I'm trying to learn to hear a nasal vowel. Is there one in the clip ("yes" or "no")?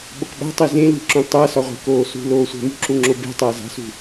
yes